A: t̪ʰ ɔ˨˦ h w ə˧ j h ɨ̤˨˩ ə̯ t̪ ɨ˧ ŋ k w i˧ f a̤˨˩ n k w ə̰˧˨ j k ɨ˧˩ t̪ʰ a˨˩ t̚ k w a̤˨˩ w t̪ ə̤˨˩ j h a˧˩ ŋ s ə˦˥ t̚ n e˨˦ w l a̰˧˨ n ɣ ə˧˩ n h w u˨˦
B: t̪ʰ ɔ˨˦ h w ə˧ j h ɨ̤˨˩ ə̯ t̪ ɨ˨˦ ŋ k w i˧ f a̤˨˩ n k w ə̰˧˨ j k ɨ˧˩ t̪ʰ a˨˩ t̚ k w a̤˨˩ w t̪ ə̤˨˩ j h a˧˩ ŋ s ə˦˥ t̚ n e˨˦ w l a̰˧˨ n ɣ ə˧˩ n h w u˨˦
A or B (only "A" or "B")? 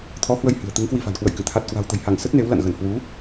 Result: B